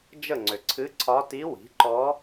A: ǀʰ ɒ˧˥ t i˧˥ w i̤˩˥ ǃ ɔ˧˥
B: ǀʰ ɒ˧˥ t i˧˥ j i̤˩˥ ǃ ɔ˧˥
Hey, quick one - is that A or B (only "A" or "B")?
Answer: A